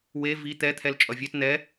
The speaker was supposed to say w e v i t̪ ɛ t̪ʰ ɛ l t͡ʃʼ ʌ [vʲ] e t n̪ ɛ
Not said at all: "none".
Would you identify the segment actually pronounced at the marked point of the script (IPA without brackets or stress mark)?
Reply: vʲ